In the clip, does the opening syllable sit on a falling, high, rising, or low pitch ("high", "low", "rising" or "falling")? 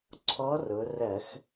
rising